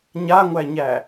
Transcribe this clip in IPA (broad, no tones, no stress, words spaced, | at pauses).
ɲaŋʷæɲæ